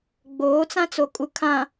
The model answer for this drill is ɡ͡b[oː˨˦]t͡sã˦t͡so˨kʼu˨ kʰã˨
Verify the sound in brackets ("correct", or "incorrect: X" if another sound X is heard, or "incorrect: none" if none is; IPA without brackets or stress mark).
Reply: correct